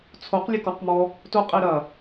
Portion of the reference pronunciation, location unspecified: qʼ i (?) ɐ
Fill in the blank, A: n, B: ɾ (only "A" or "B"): B